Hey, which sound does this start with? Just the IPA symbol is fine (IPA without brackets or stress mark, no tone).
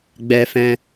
ɡ͡b